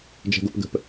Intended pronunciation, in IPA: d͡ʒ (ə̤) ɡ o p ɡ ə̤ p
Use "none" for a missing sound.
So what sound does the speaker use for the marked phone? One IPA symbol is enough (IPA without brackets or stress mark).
ə̤